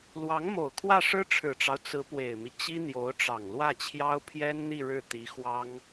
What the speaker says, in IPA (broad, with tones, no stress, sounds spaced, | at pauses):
l w ɑ˧˥ ŋ m o˨˩ ʊ̯ kʰ w ä˥˩ ʂ ɻ̩˥ ʈ͡ʂʰ ɻ̩˨˩ ʈ͡ʂ ɑ˦ ʊ̯ t͡s ɹ̩˧˥ p w e˨˩ ɪ̯ m i˦ t͡ɕ i˥ n̪ j o˧˥ ʊ̯ ʈ͡ʂ ɑ˨˩ ŋ l w ä˥˩ t͡ɕʰ j ɑ˥ ʊ̯ pʰ j ɛ˥ n n̪ i˥˧ ɻ ɻ̩˥˩ t̪ i˧˥ x w ɑ˥ ŋ